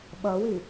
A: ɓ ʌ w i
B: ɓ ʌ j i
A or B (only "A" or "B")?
A